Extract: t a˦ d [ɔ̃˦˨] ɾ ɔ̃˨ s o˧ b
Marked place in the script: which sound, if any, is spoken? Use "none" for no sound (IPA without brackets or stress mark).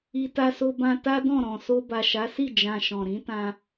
ɔ̃˦˨